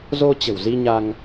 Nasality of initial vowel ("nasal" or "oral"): oral